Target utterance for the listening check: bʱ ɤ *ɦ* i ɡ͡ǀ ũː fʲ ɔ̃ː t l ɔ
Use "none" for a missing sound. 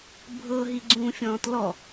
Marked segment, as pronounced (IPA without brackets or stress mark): ɦ